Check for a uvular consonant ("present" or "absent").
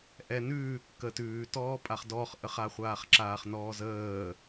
present